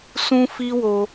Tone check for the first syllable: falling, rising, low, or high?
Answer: high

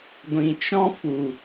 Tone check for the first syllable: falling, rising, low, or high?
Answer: low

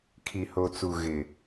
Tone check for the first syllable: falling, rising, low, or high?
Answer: low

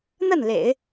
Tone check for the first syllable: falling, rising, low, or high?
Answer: falling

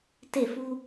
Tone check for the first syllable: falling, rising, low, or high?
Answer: falling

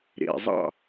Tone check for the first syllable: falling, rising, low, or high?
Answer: low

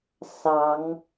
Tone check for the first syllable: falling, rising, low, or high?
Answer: rising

